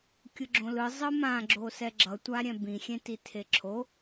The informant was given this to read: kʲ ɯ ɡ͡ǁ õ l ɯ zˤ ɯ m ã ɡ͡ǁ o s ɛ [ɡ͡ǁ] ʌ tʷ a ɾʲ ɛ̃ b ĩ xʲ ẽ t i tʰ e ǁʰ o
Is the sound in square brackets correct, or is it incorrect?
correct